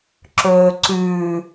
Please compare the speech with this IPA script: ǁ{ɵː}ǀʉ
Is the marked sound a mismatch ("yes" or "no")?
no